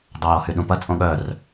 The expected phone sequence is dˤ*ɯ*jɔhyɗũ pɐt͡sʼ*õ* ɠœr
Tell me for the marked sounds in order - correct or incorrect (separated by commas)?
incorrect, correct